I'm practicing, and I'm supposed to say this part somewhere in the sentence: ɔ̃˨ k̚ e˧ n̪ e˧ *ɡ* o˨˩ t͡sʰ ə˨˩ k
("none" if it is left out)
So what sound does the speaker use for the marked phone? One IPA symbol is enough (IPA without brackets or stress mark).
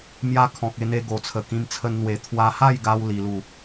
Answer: ɡ